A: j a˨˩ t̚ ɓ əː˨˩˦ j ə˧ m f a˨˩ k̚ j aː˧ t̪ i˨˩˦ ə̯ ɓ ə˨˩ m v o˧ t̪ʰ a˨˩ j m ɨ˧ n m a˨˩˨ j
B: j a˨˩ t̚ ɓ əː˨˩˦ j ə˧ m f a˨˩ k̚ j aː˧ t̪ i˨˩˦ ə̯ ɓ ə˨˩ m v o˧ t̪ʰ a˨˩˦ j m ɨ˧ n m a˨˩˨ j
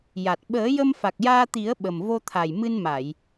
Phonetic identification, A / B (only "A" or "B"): A